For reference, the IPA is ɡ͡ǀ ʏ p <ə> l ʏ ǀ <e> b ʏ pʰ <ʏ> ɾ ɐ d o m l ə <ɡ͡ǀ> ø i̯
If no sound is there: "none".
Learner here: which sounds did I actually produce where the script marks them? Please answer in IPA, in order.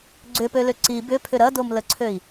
ø, i, ʏ, ǀʰ

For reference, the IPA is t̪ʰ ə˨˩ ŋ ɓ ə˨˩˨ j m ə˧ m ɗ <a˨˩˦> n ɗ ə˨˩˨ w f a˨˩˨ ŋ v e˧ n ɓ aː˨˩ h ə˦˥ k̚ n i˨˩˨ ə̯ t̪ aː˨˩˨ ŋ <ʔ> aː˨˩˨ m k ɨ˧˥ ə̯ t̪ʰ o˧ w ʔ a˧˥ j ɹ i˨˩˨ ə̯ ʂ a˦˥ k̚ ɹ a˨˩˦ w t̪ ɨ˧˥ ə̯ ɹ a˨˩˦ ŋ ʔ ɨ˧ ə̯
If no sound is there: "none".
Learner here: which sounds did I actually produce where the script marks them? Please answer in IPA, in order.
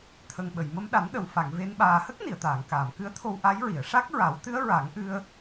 a˨˩˦, k

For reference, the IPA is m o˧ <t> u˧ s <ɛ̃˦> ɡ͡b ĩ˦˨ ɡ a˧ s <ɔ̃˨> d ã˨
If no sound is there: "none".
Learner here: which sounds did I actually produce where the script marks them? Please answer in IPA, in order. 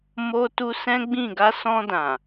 t, ɛ̃˦, ɔ̃˧

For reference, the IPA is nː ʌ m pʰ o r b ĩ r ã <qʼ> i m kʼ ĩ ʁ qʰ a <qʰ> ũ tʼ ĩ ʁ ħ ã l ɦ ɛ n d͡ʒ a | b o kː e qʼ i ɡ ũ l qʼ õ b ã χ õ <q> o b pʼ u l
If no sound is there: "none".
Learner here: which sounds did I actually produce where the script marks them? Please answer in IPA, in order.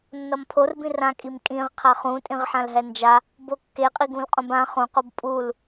kʼ, χ, q

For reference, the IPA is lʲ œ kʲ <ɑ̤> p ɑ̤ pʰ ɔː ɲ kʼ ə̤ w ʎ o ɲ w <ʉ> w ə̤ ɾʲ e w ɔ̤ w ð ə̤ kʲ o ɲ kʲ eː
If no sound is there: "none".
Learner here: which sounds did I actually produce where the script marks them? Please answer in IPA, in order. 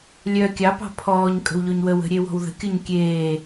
ɑ, ə

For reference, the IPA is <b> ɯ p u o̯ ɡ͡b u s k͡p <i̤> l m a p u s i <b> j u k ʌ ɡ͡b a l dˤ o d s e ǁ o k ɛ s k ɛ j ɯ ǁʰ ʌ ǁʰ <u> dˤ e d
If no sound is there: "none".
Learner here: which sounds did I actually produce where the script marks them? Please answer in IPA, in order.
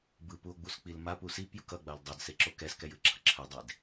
b, i, p, ɯ

